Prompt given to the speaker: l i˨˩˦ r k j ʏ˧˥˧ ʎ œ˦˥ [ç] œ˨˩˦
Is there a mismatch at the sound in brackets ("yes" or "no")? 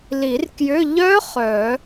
yes